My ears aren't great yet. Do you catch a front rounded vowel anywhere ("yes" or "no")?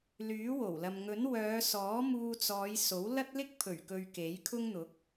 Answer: yes